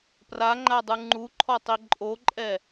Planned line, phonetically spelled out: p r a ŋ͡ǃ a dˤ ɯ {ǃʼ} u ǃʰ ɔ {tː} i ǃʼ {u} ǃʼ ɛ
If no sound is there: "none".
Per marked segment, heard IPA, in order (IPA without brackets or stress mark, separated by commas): ŋ͡ǃ, tˤ, o